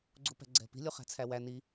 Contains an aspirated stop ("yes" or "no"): yes